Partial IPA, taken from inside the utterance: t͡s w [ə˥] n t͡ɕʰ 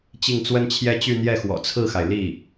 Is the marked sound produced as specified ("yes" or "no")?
yes